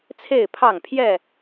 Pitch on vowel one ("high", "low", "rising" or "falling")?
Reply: falling